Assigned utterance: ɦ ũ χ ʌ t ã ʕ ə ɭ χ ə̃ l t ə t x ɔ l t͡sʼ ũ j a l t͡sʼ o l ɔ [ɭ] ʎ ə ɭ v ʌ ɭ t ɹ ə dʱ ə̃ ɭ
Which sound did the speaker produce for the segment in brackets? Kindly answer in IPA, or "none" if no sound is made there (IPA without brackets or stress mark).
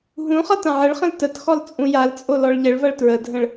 ɭ